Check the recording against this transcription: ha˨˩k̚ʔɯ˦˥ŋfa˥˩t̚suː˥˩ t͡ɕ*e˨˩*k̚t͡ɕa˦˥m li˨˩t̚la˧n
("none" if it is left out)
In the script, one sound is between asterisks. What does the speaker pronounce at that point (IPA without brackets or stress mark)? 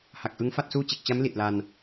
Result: e˨˩